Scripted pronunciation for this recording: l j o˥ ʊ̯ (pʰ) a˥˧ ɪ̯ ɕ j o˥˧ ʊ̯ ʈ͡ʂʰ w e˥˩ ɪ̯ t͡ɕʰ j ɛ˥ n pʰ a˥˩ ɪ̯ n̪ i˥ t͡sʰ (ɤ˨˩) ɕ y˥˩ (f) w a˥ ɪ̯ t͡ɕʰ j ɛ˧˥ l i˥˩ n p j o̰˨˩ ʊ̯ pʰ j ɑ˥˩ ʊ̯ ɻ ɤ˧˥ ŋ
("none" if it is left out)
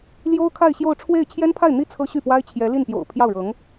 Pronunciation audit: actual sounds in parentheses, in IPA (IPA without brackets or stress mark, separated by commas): kʰ, ɤ˥, p